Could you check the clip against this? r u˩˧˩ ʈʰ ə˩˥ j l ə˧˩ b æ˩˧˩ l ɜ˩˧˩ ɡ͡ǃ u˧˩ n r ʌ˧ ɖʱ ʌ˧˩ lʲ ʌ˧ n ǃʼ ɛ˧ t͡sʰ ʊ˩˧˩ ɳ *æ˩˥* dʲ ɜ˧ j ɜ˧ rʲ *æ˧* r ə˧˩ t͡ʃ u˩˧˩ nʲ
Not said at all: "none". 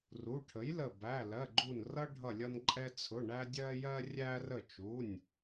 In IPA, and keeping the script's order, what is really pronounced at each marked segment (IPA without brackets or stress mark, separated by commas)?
æ˧, æ˧